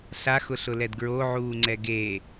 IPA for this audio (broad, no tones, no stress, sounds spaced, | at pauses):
ɬ a x ʊ ɬ ʊ l ɛ d ɡ ɹ o ʕ uː ŋ͡ǀ ɛ ɡ e